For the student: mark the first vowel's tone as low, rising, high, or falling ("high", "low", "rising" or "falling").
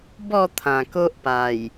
falling